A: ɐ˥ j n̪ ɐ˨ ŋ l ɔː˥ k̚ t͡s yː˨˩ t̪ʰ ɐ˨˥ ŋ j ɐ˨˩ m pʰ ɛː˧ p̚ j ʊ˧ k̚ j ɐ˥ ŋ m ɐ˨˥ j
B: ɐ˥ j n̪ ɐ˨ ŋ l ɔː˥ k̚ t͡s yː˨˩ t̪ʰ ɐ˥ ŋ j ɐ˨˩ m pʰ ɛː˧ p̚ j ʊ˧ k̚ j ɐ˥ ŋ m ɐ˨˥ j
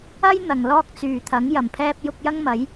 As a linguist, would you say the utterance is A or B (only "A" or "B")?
A